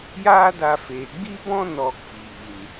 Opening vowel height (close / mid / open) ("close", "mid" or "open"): open